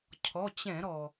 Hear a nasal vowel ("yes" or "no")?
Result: yes